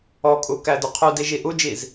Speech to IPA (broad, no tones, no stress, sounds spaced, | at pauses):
ɔ kʼ u k æ d ʊ qʰ u d i ʒ i ʔ u d͡ʒ i z